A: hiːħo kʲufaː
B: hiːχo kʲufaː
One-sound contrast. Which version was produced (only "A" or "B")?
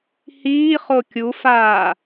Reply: B